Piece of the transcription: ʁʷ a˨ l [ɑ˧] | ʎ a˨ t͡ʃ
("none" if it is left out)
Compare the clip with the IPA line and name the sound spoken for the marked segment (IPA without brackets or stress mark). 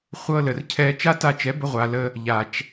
ə˧